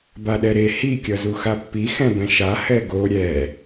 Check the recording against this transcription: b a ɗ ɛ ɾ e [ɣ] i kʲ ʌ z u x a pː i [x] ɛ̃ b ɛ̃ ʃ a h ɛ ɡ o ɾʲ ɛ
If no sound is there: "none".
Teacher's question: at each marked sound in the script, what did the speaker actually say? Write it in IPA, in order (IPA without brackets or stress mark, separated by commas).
h, x